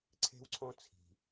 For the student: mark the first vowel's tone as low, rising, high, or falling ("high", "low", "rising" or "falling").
high